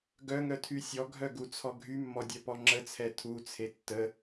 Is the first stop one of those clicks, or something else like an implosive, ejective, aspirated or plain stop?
plain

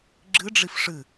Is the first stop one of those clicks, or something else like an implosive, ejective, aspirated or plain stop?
click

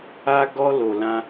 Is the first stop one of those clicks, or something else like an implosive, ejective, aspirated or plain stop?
plain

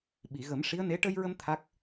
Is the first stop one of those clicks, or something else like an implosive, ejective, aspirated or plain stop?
implosive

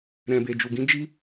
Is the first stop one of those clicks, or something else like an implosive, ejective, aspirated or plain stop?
plain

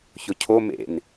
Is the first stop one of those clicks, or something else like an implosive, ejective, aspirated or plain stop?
aspirated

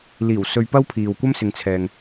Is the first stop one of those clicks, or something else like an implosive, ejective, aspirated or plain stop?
plain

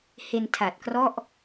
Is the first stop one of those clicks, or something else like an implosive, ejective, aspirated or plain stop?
aspirated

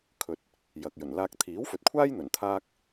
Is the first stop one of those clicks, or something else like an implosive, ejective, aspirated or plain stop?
aspirated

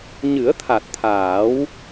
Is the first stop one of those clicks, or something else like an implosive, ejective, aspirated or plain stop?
aspirated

